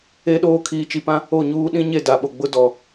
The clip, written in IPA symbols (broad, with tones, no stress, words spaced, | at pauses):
e˦ɗoː˦ kʰiː˨t͡ʃi˨pã˦ | o˦˨ɲuː˦ ɗĩ˦ɲe˦˨ da˨ɓo˨ ɡ͡bʊ˦dɔ˨